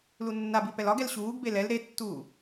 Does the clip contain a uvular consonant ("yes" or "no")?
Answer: no